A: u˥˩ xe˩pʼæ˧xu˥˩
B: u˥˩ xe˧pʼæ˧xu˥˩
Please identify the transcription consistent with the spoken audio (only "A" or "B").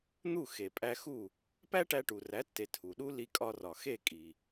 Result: A